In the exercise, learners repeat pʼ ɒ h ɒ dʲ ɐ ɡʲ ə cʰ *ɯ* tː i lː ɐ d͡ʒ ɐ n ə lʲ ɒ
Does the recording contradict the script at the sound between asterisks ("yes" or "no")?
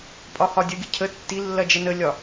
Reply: yes